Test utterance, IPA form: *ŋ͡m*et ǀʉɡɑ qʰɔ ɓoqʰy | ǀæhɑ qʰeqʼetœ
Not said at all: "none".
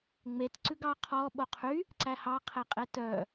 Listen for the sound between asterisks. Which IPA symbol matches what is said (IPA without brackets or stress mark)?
ŋ͡m